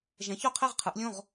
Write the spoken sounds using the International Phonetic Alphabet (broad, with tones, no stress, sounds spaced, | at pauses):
ʒ ɛ̃˩˥ ç o˥˨ qʰ ɛ˥˨ ʁ qʰ ɯ˩˥ ʔ lʲ õ˥˨ ʁ